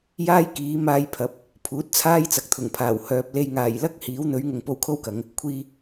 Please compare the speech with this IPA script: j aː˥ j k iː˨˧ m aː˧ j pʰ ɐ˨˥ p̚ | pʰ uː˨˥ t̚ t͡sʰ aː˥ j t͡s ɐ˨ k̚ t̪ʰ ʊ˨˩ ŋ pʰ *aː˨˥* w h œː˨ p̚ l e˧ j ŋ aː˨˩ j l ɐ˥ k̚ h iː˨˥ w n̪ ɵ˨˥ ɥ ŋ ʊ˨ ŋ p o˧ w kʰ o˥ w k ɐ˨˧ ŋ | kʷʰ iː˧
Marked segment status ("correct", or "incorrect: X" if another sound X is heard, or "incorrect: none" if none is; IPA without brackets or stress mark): incorrect: aː˨˩